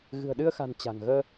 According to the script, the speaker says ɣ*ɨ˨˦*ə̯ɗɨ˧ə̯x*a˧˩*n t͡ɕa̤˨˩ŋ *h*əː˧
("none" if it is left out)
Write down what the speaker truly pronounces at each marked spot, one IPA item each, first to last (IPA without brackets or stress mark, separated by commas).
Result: ɨ̤˨˩, a̤˨˩, ɣ